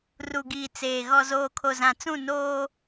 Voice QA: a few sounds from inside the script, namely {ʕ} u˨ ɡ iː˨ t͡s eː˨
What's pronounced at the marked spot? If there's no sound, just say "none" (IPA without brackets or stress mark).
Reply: r